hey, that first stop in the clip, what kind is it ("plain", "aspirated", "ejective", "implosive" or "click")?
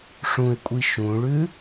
ejective